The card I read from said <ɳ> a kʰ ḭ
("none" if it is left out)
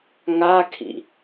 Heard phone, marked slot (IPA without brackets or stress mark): ŋ